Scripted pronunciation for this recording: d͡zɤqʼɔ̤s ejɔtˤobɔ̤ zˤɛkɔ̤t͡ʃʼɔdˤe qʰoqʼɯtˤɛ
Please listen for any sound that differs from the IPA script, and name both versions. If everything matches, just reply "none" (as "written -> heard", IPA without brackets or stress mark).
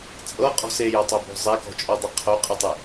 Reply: d͡z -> t͡sʼ